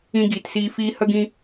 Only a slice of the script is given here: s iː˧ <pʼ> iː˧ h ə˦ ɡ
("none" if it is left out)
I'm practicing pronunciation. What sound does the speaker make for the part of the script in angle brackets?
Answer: f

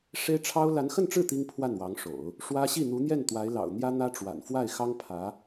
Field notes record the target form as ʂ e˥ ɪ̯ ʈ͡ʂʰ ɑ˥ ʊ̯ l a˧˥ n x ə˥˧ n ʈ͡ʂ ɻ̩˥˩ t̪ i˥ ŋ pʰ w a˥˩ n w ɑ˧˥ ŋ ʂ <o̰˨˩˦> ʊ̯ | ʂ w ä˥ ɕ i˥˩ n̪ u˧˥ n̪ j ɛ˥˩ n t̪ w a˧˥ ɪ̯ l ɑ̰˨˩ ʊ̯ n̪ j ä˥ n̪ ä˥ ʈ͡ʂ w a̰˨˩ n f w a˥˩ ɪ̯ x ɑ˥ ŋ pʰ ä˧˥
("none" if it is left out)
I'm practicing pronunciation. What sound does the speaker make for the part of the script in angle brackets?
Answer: o̰˨˩˦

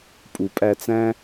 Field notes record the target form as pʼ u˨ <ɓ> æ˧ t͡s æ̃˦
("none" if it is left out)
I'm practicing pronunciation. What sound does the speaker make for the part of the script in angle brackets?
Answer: pʼ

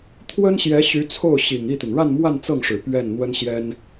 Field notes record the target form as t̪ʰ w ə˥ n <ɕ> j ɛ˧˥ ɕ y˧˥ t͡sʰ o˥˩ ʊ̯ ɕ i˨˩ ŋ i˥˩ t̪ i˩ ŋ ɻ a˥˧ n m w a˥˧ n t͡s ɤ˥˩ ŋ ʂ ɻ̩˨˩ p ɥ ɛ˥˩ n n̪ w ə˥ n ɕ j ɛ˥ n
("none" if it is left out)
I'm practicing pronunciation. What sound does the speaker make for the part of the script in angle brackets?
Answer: ɕ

